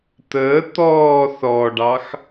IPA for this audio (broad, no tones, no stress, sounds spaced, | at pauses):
t̪ əː t̪ ɔː θ ɔ ɖ ɑ x